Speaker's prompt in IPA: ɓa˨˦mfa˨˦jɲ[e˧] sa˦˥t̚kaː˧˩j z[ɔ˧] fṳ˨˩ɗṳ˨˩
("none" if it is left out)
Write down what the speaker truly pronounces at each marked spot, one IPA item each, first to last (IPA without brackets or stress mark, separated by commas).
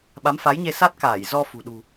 e˧, ɔ˧